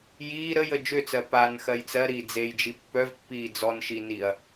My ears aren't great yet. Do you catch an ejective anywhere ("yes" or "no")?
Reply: no